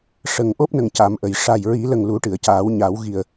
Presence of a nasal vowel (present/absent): absent